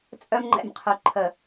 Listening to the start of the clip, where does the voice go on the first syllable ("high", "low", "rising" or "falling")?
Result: high